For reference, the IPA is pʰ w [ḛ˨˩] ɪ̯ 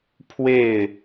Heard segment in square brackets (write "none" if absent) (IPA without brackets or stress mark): e˥˨